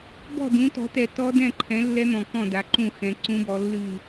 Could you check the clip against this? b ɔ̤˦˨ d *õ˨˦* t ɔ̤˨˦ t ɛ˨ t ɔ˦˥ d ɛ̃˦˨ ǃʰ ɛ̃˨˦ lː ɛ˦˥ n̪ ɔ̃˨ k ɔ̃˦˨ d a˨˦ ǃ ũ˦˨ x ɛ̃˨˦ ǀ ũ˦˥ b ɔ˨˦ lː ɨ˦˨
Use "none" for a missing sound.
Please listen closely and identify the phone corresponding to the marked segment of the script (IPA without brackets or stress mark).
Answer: ũ˨˦